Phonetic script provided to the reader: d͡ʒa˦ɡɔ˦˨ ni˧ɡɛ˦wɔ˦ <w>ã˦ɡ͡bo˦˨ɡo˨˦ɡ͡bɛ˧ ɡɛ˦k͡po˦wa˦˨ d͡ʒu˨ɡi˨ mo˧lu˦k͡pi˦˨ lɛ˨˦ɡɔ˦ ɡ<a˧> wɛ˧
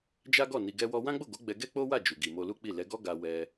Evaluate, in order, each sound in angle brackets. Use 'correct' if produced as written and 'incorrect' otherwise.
correct, correct

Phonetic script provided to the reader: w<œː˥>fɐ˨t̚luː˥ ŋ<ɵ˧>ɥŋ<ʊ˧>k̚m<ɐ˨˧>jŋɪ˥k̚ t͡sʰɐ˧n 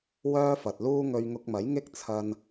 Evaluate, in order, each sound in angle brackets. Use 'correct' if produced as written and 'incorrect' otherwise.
correct, correct, correct, incorrect

